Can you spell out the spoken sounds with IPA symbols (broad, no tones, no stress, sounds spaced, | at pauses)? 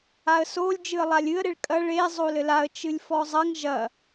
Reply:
a ə̯ s o lʲ d͡ʒ ɨ ə̯ lˠ a lʲ ɨ ə̯ ɾ e ɭ kʼ ɐ ɭ e zˤ o l ɘ l a ə̯ t͡ʃ ɨ lʲ f ɔ zˤ ɐ ŋ ʒ ɐ